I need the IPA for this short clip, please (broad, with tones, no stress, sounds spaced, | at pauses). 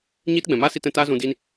ɲ iː˦ t ɡ͡b ɛ̃˨ m aː˦ s i˧ t ɛ̃˧ t aː˦ z ũ˧ d iː˧ n